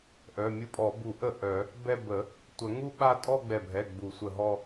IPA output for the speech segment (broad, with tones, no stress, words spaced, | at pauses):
ʔœ˩˧˩mʲu˦˥pʼɔ˨˩˦ bu˨˩˦ʔə˧˩ ʔœ˨˩˦ | bɛ˥˧ bə˨˩˦ | tʷə˨˩˦ ŋu˥˧ɓa˥˧ tʼɔ˥˧ɡ͡bɛ˧˩bʱɛ˩˧˩ ɡ͡bu˨˩˦sʷə˧˩ɦɔ˥˧